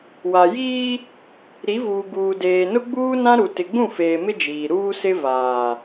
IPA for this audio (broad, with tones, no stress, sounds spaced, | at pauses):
w a˨ j iː˦ | ɾ i˨˦ v uː˨ ɡ uː˨ d eː˨ n ʊ˦ ɡ͡b uː˦ n ã˦ ɾ u˨ t ɪ˨ ɡ͡b ũ˦˨ f eː˨ m ɪ˦ d͡ʒ iː˨ ɾ uː˦ s ɪ˦ v aː˨